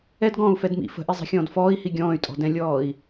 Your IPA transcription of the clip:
ɛ d ɡ ɔ̃ː u̯ f ɛ d m ḭ f ə̤ ʔ i zˤ i̤ xʲ ɔ̃ː d f ɔː i̯ h i ɡʲ ɔ̃ː y̯ tʼ ɔ̤ d ɛ̃ lʲ ɔː i̯

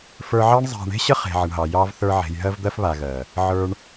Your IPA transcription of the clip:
f ə˞˧ ʕ ɑ˦ ɳ zˤ a̤˧ ɳ e̤˦ ɕ ə˦ χ e̤˨ ʕ ə˨ ɳ ɦ ɑ˨ j ɑ˧ v θ ə˞˧ ʕ e̤˨ j ɦ ɜ˧ v d̪ ɜ˧ f β a˨ ɣ ɜ˨ | ʕ ə˞˧ ɳ

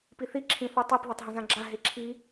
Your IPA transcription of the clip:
p i θ i ǁʰ ĩ θ u tˤ i p ð a tˤ ɦ ɐ̃ z ã ɡ͡ǁ a ɦ e ǁʰ i

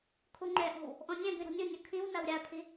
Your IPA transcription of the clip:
kʰ u ŋ͡ǃ ɛ ʔ ɔ̤ w | ʔ ɔ̃ nʲ ɛ̃ b ĩ ɾ ɔ̤ nʲ u nʲ o kʰ ĩ w n a w ɾʲ a pʰ i

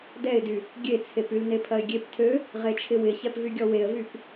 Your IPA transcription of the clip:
d ɛ ɪ̯ d y | ɡʲ e t͡sʰ e p y l n e pʰ ɐ ɪ̯ ɡʲ e p tʰ ø | ʁ e t͡ʃʰ ɪ w ɪ ç ɛ p v y ɡʲ ɔ w e ə̯ v y p

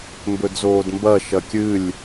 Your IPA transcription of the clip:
m b ɵ d z oː d m b ɐ ʃ ɐ kʲ ɨ lʲ

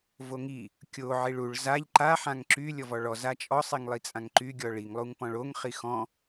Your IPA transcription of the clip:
v o ŋ i | kʲ o ʕ i ɭ u ɭ z a ʎ ǃ a ħ ã ŋ ǁ y lʲ ɔ v ɔ ɭ ɔ z a t͡ʃʼ ɔ sˤ i ŋ lˠ i t͡sʼ ã ŋ ǃ y ɡʲ ɔ ɭ i ŋ lˠ u ŋ p ɔ̃ ɭ o ŋ χ i x ɔ̃

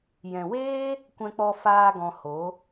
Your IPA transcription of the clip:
j ɛ̃˨ w eː˦ | kʷ ɛ̃˦ k͡p ɔ˦ f aː˧ ɡ ɔ̃˧ h o˨˦

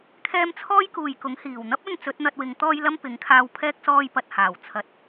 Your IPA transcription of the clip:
kʰ ɛː˥ m t͡sʰ ɔː˥ j k uː˨ j k ʊ˨˥ ŋ h iː˨˩ w n̪ ɐ˥ p̚ ɵ˧ n t͡s ɵ˨˥ t̚ n̪ ɐ˧ t̚ w ɪ˨˧ ŋ t̪ ɔː˥ j l ɐ˥ m p ɪ˨˥ ŋ kʰ aː˧ w pʰ ɛː˥ k̚ s ɔː˧ j p ɐ˨ t̚ h aː˨˩ w t͡sʰ ɐ˨˥ t̚

